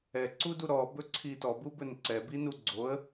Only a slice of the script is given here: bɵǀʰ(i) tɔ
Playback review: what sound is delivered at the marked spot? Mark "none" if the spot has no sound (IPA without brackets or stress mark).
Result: i